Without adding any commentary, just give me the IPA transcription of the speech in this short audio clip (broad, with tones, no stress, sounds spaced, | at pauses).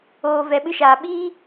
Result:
oː˧ v ɛ˧ ɓ ɨ˦ ʃ aː˧ ɓ iː˦